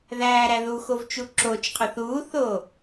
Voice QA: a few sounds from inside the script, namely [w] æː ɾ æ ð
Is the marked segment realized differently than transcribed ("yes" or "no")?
yes